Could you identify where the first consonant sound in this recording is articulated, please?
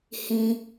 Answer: glottal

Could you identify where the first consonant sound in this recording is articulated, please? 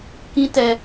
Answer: velar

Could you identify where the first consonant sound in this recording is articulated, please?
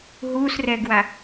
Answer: glottal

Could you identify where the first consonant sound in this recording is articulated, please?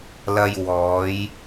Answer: alveolar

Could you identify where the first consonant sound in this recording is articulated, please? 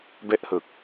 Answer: labial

